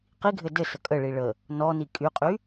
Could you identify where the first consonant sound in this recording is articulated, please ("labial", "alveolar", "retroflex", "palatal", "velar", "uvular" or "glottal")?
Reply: uvular